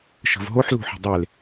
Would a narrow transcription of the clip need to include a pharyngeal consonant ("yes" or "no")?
yes